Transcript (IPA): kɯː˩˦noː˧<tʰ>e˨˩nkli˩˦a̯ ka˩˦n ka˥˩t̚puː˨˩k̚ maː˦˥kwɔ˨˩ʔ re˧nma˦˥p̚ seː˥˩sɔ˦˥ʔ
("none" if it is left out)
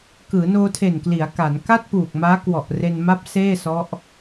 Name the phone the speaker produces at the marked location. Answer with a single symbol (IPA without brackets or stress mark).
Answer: tʰ